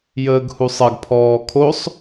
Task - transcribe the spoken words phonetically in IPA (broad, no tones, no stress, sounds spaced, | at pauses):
j əː ɡ h u sˤ ɐ ɡ pʰ ɔː kʰ o sˤ